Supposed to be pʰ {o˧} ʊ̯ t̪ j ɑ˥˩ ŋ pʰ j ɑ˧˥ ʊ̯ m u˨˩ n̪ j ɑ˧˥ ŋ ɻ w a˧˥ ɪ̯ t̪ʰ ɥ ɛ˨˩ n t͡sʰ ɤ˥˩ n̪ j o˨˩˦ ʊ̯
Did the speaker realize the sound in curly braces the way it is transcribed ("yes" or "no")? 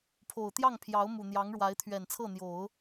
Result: no